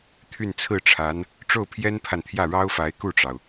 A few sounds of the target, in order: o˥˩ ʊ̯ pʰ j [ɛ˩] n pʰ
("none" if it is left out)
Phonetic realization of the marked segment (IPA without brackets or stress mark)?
ɛ˥